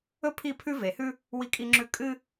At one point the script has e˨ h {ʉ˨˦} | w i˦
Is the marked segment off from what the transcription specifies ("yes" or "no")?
yes